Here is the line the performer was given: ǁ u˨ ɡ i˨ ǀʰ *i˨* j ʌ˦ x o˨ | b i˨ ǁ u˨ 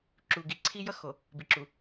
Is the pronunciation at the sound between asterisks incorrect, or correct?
incorrect